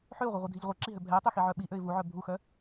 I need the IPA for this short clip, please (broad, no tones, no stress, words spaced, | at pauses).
ħøʊ̯ʁʷœʁʷidʱiʎ ʁʷɛǁiɦø bʱɛɪ̯tˤøxiʕœ ɓiʔøɪ̯ vuʕœ bʱuxœ